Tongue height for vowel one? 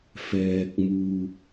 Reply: mid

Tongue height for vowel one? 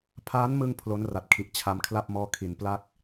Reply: low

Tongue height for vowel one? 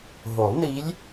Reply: mid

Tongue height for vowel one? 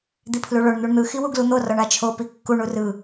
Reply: high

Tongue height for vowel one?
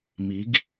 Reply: high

